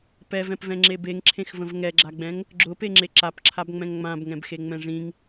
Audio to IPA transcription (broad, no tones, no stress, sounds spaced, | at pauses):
p ɛ v ɛ̃ p v ɛ̃ ŋ͡ǁ e b e ŋ ǁʰ ẽ x v ə̃ v ŋ ɛ ɡ͡ǁ a ɡ͡b ɛ̃ ŋ | ɡ͡ǁ ʊ p e ŋ͡ǁ e ǁ a p ǁʰ a b ŋ͡m ɛ̃ ŋ ŋ͡m ã b ŋ ɛ̃ b x e ŋ͡m ɛ̃ ʐ ĩ ŋ